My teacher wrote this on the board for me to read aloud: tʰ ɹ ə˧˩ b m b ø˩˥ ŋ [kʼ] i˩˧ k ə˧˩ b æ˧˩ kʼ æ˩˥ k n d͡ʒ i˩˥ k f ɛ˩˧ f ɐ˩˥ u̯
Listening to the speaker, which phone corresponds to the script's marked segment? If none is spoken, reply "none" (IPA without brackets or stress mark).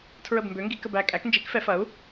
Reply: ɡ